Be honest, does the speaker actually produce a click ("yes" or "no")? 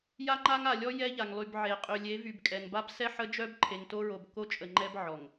yes